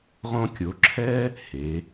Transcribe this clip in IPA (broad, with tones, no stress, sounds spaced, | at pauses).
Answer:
ʁ õ˧ kʲ o˩˧ ǁʰ ɛ˥ | h e˩˧